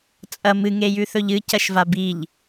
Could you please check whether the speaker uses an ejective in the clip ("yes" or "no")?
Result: yes